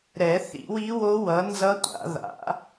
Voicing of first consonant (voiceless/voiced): voiced